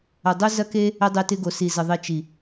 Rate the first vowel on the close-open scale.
open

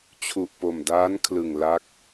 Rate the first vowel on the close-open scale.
close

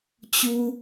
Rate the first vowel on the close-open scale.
close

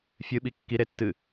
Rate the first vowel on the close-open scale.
close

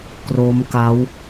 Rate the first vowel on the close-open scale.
mid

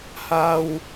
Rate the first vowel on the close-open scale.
open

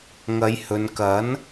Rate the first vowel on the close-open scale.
open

